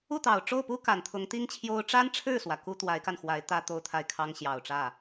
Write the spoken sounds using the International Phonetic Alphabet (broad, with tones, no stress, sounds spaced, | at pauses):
u˥˩ t̪ ɑ˨˩ ʊ̯ ʈ͡ʂ o˥˩ ʊ̯ p u˥ k a˨˩ n t̪ʰ ʊ˧˥ ŋ t̪ i˥ ŋ t͡ɕʰ j o˥ ʊ̯ ʈ͡ʂ a˥ n ʈ͡ʂʰ ɻ̩˥˩ s w ä˩ k u˥ t̪ w a˧˥ ɪ̯ k a˧ n x w a˧˥ ɪ̯ t̪ ä˥ t̪ o˥ ʊ̯ t̪ʰ a˥˩ ɪ̯ kʰ ɑ˥ ŋ ɕ j ɑ˨˩ ʊ̯ ʈ͡ʂ ä˥˩